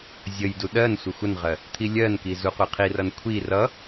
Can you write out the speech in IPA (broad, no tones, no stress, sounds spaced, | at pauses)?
zʲ ə j d u ɗ ɜ n sʷ ə xʷ ə n ʁ ɜ | t̪ʰ i lʲ ɜ n k i z u qʷ i qʰ i r ʌ n kʷʰ i r ʌ